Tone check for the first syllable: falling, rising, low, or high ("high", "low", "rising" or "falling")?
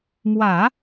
low